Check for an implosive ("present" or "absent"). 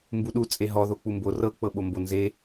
present